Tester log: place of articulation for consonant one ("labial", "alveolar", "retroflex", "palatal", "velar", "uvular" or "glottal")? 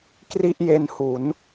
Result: velar